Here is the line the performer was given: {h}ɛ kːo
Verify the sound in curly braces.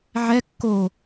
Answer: incorrect: ʕ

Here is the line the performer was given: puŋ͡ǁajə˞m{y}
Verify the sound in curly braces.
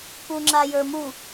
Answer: incorrect: u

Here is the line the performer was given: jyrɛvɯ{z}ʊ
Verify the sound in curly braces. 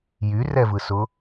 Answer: incorrect: s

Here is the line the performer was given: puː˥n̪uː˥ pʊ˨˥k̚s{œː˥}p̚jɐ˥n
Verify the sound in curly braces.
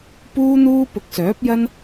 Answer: incorrect: œː˨˥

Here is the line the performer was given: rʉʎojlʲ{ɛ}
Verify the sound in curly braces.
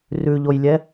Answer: correct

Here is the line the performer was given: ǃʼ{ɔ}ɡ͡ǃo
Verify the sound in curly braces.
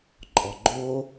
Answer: correct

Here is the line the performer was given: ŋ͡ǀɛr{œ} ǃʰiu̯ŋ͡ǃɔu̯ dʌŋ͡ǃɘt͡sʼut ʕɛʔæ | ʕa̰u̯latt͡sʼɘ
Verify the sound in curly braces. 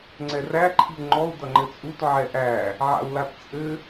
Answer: incorrect: æ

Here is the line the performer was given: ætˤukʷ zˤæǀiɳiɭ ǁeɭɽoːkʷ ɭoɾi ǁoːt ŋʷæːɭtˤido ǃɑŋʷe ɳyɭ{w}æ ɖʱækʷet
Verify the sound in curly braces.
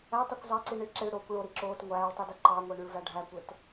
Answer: incorrect: v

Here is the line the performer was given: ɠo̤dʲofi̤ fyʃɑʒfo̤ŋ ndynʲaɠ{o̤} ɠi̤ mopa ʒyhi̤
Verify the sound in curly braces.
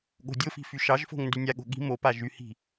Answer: correct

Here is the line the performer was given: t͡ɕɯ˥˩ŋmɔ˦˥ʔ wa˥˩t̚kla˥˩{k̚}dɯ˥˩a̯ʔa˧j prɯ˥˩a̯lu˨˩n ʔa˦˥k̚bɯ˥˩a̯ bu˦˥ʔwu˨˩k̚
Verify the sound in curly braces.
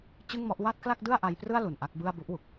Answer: correct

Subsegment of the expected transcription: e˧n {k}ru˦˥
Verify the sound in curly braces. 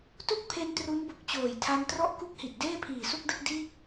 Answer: incorrect: t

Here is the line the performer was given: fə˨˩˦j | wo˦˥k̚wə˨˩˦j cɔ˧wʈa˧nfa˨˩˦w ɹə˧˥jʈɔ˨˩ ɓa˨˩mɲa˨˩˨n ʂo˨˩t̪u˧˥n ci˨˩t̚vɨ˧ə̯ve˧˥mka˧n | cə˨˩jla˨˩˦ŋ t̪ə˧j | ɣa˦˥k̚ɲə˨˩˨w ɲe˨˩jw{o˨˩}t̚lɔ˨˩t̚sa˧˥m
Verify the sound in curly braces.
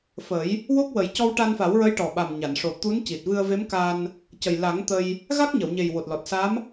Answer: correct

